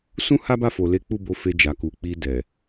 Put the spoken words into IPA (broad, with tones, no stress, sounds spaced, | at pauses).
s ũ˦ h a˦ b a˦˨ f o˨ l e˨˦ k͡p u˦˨ b o˨˦ f e˧ d͡ʒ a˨ k u˨ k͡p i˧ d ɛ˨